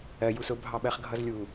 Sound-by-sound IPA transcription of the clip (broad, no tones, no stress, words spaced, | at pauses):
ɜ jus ʊ bʱɑɓɜχɡʱʌzlʲu